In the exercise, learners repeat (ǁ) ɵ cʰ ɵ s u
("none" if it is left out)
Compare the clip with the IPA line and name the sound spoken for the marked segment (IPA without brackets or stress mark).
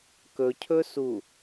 k